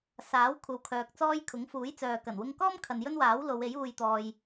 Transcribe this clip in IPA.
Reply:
s aː˨˥ w kʷʰ ɐ˨ w kʰ œː˨ k̚ t͡s ɔː˥ j kʰ ʊ˨˥ ŋ f uː˨˥ j t͡s œː˨ k ɐ˨˩ n w ʊ˧ ŋ k ɔː˥ m kʰ ɐ˨ n j ɵ˥ n w aː˨˥ w l o˨˧ w e˨˥ j uː˧ j t̪ ɔː˧ j

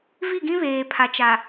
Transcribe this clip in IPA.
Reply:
v i˦˨ ɡ ĩ˦ β eː˨ pʰ a˨ t͡ʃ a˨

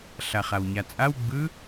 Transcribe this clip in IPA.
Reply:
ɬ a χ a w ɲ a t͡sʼ a w ɡ͡b ɯ

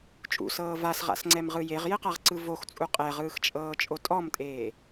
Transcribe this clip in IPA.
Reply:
t͡ʃʼ ṵ s ɤː v a s ʁ a̰ s ŋ͡ǀ ɛ m ʁ ɯ j e ʁ j e q a ʁ ǀ ɯ v o x t͡sʼ u qʼ ɛ ʁ ɯː x t͡ʃʼ ɤː t͡ʃʼ o tʼ ɔ m tʼ eː

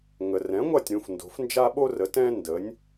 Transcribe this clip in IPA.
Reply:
ŋ ə˩ r ɛ̃˩˥ ŋʷ a˥˩ tʲ ɾ ũ˧ f n d o̤˩˥ f n d͡ʒ a˥ ɓ o˥ r ə˩˥ t ɛ̃˥ n d ə˩˥ nʲ

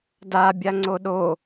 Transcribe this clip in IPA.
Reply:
d a bʲ a ŋ͡ǀ o ɗ o

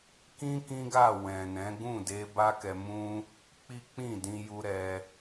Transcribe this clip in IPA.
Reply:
k ĩ˦ k ĩ˦ ɡ a˦˨ w ɛ̃˨ n ɛ̃˨˦ ɡ ũ˦˨ d e˧ b a˦ k ɛ˧ m ũ˦ | k͡p i˦ k͡p ĩ˦˨ d ĩ˧ j u˦ ɾ ɛ˦

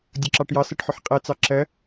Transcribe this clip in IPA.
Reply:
dʲ ʌ ǁ ɑ ʈ j ɑ s ɜ ʈ ħ ʊ ħ qʼ ɛ t͡s ɑ ǁ ɜ

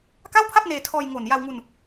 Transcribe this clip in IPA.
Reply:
k a˥˩ w pʰ a˥˩ p̚ n eː˧ tʰ ɔː˧ j ŋ o˨˩ n j a˧ w ŋ u˧ n

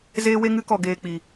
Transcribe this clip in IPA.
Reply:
z eː˦ w e˦ ŋ ɨ˦ k ɔ˧ ɡ eː˧ k͡p i˧

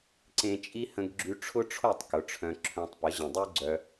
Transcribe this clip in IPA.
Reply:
ǀ ẽ˦ t͡ʃʼ i˦ h ə̃˧ ɡ ɡ͡ǁ y˧ ʈ͡ʂʰ ʊ˦ ʈ͡ʂʰ o˦˨ tˤ k ʊ˨˦ ʈ͡ʂʰ œ̃˧ ǁʰ œ̃˧ tˤ p ə˨˦ ʑ ə̃˨ dˤ y˦ ɡ͡ǀ œ˧

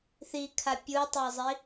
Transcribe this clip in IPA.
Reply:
θ i kʰ a pʲ u tˤ ə˞ zˤ i

